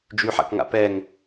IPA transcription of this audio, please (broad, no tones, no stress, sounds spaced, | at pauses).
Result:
d͡ʒ y ħ a̰ k ŋ a̰ p ɛ ŋ